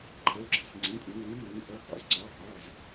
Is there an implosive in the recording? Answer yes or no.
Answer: no